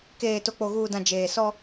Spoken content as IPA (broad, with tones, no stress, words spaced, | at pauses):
keː˨ to˨k͡po˨ɣuː˨dã˨ d͡ʒeː˨sɔ˦